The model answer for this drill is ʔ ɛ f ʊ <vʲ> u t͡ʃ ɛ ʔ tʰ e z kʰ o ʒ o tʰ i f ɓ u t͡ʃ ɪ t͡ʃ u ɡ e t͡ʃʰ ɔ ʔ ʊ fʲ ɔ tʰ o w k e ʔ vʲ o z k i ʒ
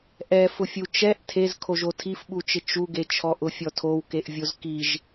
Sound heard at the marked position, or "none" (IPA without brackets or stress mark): fʲ